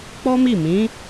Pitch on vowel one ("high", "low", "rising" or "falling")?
high